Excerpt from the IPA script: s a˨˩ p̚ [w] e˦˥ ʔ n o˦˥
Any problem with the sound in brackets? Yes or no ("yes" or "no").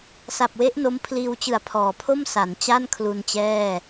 no